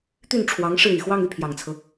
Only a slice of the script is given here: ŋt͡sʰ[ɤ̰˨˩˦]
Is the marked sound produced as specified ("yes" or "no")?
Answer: no